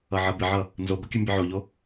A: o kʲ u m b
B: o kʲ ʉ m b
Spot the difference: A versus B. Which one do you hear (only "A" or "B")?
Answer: B